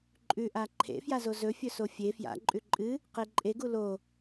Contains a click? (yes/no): yes